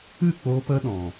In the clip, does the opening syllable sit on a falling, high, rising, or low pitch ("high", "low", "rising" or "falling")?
falling